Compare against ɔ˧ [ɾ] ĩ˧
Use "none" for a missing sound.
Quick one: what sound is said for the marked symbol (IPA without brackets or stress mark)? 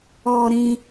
ɾ